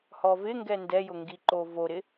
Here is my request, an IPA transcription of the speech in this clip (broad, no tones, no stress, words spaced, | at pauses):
hɔvɪŋɡɛ ndɛjʊŋɡiǃo voɾɪ